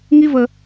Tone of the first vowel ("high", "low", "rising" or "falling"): high